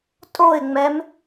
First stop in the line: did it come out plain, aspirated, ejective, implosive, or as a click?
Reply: ejective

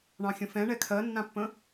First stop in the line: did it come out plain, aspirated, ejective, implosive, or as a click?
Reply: aspirated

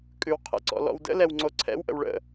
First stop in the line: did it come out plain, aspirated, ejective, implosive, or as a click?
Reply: ejective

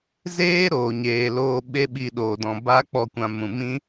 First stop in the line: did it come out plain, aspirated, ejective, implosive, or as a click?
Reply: implosive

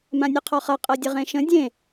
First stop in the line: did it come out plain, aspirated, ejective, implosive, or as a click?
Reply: aspirated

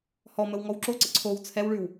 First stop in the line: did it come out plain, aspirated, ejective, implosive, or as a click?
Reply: click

